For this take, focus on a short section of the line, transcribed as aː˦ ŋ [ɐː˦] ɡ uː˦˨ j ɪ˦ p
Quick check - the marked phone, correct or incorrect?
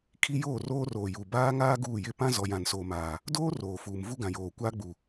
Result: incorrect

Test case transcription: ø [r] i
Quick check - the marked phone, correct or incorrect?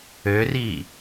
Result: correct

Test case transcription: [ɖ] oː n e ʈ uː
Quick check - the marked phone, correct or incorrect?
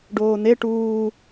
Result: correct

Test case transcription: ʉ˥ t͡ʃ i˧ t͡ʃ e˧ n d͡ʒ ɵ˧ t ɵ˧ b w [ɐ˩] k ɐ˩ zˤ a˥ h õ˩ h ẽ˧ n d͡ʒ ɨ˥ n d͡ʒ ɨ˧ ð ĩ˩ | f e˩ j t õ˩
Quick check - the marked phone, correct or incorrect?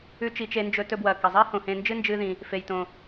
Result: correct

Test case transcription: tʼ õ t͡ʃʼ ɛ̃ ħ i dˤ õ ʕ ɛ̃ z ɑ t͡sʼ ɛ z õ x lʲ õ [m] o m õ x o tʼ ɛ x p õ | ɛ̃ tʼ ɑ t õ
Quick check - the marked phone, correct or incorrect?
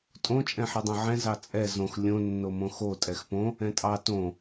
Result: incorrect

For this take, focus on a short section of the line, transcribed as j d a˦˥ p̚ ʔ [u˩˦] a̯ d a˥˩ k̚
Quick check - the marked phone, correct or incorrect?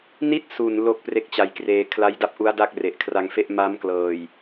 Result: incorrect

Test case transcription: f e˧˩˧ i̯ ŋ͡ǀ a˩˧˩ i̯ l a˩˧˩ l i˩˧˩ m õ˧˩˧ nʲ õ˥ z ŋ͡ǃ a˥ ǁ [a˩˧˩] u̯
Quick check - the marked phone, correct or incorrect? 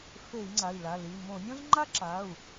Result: correct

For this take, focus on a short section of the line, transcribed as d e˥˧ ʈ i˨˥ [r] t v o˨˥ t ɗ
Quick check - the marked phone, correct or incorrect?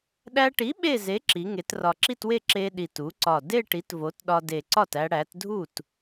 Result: incorrect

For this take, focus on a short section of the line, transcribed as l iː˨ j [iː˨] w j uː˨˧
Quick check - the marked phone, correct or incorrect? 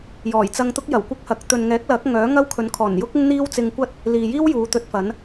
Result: incorrect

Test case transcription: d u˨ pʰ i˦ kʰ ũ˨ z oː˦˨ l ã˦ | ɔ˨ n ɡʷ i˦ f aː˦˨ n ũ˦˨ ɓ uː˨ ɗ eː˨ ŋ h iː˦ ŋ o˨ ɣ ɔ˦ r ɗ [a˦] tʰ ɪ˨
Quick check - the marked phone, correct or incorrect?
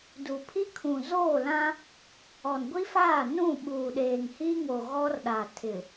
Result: incorrect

